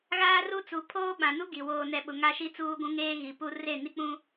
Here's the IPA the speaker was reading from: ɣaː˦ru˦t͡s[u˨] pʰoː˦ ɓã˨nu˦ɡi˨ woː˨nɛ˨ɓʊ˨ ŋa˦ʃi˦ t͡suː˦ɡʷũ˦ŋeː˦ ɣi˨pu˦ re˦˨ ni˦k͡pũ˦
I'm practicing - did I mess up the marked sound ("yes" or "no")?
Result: yes